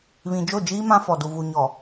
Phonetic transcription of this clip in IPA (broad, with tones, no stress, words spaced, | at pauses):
βĩ˨d͡ʒo˦˨d͡ʒiː˦ mã˦fɔ˨du˨ vu˨ɲɔ˨